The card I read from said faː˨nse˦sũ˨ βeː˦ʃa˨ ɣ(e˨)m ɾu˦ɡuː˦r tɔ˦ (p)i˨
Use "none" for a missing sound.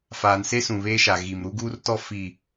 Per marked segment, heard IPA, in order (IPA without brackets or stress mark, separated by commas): i˨, f